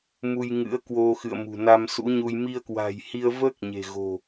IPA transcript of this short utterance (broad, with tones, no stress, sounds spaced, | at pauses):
m u˧ j ŋ ɨ̰˧˥ ə̯ k w o˧ x ɨ̰˧˨ ə̯ m ṳ˨˩ n a˧ m s ṵ˧˥ ɲ u˧ j m i˧ ə̯ k w a̤˨˩ j h i˧ ə̯ v əː˦˥ k̚ ɲ e̤˨˩ ɣ o̤˨˩